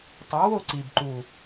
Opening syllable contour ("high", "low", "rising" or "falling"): rising